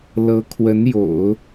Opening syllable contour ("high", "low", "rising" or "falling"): rising